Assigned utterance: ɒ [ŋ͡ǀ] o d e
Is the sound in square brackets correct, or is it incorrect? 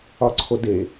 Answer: incorrect